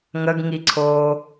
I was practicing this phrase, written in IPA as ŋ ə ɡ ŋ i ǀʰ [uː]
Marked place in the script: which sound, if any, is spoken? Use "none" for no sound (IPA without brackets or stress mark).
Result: oː